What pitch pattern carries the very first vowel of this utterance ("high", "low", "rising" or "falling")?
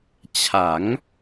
rising